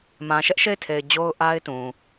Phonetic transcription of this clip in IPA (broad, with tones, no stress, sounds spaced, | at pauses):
m ã˨ ʃ ɛ˦ ʔ ʃ e˦˨ ɪ̯ tʰ e˨ ɪ̯ d͡ʑ o˦ ʊ̯ ʔ a˦ ɪ̯ t ũ˨